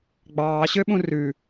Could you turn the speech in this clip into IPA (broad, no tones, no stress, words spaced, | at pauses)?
ɡ͡bɑːɕøɓũ rʉ